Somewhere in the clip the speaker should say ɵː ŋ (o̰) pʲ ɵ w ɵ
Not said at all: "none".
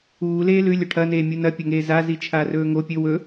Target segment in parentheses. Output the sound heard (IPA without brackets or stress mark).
o